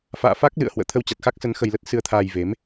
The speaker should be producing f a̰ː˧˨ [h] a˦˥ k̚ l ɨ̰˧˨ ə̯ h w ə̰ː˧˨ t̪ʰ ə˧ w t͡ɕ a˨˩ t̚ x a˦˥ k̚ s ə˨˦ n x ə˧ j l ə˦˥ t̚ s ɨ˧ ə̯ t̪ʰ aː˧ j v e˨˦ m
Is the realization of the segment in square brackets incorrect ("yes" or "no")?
yes